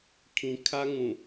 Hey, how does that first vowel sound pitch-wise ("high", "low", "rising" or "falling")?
low